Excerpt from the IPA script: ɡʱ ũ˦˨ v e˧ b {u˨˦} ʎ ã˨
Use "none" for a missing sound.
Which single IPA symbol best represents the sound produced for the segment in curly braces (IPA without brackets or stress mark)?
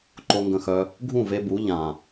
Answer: u˨˦